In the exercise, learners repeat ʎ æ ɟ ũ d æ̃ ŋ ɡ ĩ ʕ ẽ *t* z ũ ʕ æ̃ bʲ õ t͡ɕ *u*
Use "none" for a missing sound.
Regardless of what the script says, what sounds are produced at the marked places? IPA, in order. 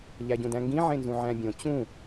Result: n, ũ

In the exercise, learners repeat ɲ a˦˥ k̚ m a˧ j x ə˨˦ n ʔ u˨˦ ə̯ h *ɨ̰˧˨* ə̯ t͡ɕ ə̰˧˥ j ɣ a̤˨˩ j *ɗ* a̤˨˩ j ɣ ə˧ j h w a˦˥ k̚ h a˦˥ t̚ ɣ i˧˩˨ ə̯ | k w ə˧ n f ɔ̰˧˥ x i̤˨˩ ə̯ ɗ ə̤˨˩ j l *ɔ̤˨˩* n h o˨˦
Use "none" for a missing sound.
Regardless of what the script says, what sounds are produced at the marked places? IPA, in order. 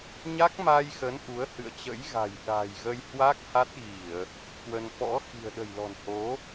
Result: ɨ̰˧˨, ɗ, ɔ̤˨˩

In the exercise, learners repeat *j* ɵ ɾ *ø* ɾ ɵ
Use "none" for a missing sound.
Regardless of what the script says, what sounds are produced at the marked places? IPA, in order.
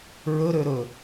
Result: ɹ, ø

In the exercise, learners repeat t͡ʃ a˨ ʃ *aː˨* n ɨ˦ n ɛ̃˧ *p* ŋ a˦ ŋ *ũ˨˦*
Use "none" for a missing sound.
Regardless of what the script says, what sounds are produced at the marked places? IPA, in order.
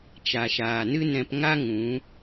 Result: aː˨, p, ũ˨˦

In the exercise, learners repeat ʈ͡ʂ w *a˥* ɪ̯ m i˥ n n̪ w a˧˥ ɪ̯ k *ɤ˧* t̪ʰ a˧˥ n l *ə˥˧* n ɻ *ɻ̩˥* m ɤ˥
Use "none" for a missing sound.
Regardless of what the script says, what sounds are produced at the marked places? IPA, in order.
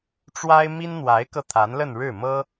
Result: a˥, ɤ˧, ə˥˧, ɻ̩˥˩

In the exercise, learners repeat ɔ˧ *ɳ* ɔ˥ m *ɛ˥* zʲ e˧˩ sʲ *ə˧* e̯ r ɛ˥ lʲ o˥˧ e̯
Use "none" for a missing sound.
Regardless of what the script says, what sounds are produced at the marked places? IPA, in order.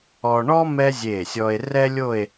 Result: ɳ, ɛ˥, ɔ˧

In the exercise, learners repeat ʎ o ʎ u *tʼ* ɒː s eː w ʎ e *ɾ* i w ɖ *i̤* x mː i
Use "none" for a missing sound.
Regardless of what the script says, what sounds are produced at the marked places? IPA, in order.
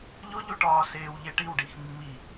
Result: ʈ, ʈ, i

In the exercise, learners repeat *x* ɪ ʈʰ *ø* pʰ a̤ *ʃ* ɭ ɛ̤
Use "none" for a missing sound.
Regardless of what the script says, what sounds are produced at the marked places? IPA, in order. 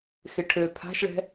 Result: x, ø, ʃ

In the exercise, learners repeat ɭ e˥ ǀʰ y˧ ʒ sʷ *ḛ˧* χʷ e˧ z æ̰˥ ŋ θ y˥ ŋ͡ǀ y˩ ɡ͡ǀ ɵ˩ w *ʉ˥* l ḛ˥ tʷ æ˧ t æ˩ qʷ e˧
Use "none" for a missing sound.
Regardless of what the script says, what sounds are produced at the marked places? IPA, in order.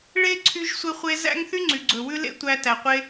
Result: e˧, ʉ˥

